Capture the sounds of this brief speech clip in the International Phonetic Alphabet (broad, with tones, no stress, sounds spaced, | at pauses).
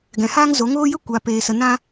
ɡ ɛ̃˨ h aː˦ ŋ z o˨˦ ŋ oː˦ j ə˦ kʷ a˨ p eː˨ s ə˨ n ã˦